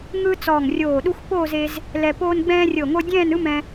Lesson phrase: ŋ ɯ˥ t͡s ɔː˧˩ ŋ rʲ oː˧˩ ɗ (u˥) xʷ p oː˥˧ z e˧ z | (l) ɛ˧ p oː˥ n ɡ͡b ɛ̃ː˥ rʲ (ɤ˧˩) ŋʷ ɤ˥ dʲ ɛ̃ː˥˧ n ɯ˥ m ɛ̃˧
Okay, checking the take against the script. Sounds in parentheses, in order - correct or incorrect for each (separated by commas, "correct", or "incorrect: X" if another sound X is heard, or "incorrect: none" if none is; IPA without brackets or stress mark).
correct, correct, correct